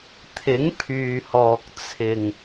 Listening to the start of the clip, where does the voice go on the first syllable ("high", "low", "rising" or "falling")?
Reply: rising